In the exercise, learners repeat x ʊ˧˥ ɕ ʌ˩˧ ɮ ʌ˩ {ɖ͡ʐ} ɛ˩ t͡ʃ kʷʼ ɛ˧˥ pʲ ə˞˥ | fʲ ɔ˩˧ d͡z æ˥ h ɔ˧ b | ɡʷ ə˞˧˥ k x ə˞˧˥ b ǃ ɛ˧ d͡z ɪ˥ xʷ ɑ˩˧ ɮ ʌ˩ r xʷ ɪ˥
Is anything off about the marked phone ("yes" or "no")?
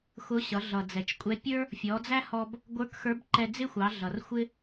yes